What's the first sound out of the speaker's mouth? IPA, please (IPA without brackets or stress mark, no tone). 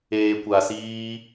eː